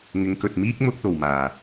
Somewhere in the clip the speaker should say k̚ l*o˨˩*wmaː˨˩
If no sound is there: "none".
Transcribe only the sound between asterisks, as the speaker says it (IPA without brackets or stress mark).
o˨˩